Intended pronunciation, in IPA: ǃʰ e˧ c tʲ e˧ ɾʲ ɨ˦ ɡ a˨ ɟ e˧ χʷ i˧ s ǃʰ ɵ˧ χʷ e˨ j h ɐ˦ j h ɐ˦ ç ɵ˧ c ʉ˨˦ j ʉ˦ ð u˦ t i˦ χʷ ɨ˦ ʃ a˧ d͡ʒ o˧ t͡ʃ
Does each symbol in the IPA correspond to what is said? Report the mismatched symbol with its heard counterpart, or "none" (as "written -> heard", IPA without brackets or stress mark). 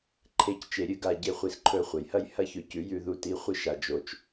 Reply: tʲ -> t͡ʃ